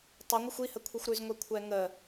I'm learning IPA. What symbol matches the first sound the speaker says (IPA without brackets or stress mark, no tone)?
tˤ